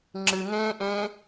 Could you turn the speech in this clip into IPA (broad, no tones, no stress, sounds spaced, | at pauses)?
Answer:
ŋ͡ǁ ɨ ŋ ẽː ʔ ẽː